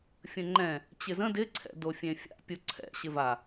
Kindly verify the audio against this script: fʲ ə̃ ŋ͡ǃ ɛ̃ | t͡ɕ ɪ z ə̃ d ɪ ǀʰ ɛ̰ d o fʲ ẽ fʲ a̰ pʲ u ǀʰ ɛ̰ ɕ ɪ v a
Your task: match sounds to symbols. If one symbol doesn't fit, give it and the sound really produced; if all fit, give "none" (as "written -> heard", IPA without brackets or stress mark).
none